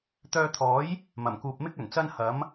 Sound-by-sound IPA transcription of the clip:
t̪œː˧t̪ʰɔː˨˥j | mɐ˨˩mkuː˨p̚mɪ˥k̚ ɵ˨˩nt͡sɐ˥nhɐ˨˥m

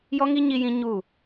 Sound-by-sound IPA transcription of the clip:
jɔ˦ŋi˦ ɲi˦jĩ˦ ɲu˦˨

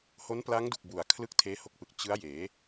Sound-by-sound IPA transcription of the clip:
ho˦˥npla˦˥ŋdu˨˩k̚ bu˨˩a̯ kʰlɯ˥˩k̚tʰeː˦˥ho˦˥k̚pɯ˨˩k̚ t͡ɕɯ˦˥a̯jeː˩˦

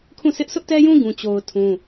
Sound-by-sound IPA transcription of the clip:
kʰũ˦˨sʰɪ˦ʔ sʰʊ˦ʔtɛ˦jũ˦ ɡũ˦t͡ɕo˦ʊ̯tʰũ˦

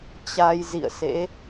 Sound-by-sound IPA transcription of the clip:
t͡ɕa˧jzḭ˧˨ə̯sḛ˧˥

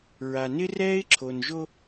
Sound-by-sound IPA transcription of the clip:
ɹa˨ nɪ˦rɛː˦ɪ̯ ǁʰo˨nʒo˦

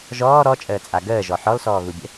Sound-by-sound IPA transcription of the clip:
ʒɔː ɾɔt͡ʃʼəːt͡sʼa ɡəːʒɔ ħɔlsɔːɣubʲə̰

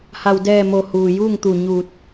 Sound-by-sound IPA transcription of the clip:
ha˩wdɛː˧˩mo˩ huː˩juː˥˨ŋt̪u˧˩ ɲuː˧˩t̚

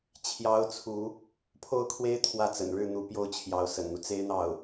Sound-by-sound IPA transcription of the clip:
t͡ɕʰjɑ˥ʊ̯t͡sʰu˧˥ | pʰo˥˩ʊ̯kʰwe˥ɪ̯ t̪ʰwä˥˩t͡sə̰˨˩nɻɻ̩˥˩ n̪u˧˥ pjo˥˩ʊ̯t͡ɕʰjɑ˧˥ʊ̯ sə̰˨˩nn̪u˦ t͡se˥ɪ̯n̪ɑ˥˩ʊ̯

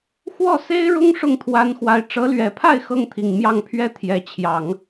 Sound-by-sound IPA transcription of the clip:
xwɔ˥˩se˥ɪ̯ɻʊ˥ŋ ʂʊ˥˩ŋt̪ʰwa˧˥nxwa˧˥ɪ̯ ʈ͡ʂɤ˧˥lɥɛ˨˩pʰa˥˩ɪ̯ xɤ˥ŋt̪ʰi˨˩ŋmjɑ˥˩ŋpʰɥɛ˥ t̪ʰjɛ˧˥t͡ɕʰjɑ˨˩˦ŋ

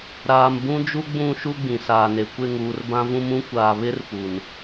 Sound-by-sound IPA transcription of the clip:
ɾaː˨m bũ˦d͡ʒu˦ ɡ͡bũ˦˨ʃu˦ ɡ͡bĩ˨saː˨ne˨ kʷɪ˦˨ŋuː˨rbã˦vũ˦m ũ˦kʷaː˨ βɪ˦r pu˨n

